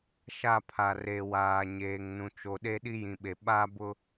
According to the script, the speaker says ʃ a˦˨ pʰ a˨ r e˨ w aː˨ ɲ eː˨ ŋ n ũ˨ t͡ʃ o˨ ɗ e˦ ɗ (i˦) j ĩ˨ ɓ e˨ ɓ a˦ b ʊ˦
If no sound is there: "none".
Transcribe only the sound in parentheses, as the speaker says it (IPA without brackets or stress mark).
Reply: i˦